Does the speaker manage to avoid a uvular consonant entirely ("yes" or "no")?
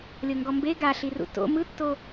yes